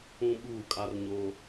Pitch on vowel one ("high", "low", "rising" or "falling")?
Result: high